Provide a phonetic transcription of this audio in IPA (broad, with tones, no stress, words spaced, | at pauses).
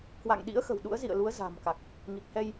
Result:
kwa̰˧˨ŋɗḭ˧˥ə̯xə̤˨˩w ɗṵ˧˥ə̯zḭ˧˨ə̯lu˨˦ə̯ za̤˨˩mka˨˩k̚ | ŋi˨˩k̚hɛ˧j